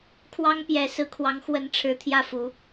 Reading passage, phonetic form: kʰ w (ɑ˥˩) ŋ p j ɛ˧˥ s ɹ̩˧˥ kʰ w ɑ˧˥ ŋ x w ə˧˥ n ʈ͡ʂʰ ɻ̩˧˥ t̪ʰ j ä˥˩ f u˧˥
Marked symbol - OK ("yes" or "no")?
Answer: no